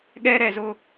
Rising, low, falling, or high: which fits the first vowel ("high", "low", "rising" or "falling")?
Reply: high